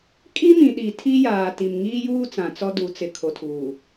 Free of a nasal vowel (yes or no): no